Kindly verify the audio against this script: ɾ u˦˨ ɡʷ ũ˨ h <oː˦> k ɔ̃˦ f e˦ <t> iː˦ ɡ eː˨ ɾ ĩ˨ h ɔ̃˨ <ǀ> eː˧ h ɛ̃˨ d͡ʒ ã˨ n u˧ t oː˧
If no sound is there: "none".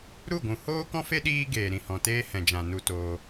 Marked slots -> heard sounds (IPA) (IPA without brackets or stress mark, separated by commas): oː˦, ɗ, t